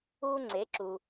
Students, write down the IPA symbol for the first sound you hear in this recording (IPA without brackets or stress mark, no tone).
u